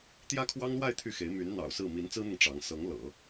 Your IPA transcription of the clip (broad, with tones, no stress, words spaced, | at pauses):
t̪jä˥kʰwɑ˥ŋlwa˥˧ɪ̯ t̪ʰy˥˩xe˧˥ɪ̯ my˧˥n n̪ɑ̰˨˩ʊ̯sɹ̩˥˩ mi˧˥nt͡sɹ̩˥n̪ʊ˨ŋ ʈ͡ʂɑ˧˥ŋ sɤ˧˥ŋ lɤ̰˨˩˦